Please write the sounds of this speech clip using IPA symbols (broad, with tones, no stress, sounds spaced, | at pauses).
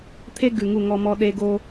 t̪ʰ e˦ ɡ ʉ˨ ŋ u˦˨ ŋ ɔ˦ m ɔ˦ ɗ e˦ ɡ o˦